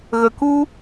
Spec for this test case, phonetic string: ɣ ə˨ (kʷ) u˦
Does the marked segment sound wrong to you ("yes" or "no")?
yes